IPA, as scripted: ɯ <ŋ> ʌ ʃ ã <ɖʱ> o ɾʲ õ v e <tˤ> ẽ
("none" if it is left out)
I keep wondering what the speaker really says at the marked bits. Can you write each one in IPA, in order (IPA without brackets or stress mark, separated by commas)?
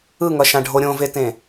ŋ, ɖʱ, t